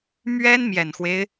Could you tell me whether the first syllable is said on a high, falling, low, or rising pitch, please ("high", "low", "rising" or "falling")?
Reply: high